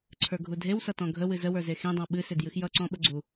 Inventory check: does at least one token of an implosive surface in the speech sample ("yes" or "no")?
yes